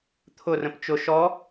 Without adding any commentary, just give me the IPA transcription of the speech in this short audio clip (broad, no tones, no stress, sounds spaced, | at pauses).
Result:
t̪ʰ ʊ r ə̃ p t͡ʃ ʊ ʃ ɔ